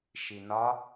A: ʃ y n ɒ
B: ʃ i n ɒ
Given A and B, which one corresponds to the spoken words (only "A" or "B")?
B